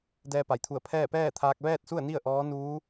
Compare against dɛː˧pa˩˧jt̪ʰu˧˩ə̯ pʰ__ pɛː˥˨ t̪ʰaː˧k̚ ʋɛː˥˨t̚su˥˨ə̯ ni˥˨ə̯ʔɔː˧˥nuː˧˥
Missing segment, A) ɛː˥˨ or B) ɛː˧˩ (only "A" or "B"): A